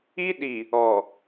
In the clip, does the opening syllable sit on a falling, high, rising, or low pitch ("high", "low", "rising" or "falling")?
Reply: high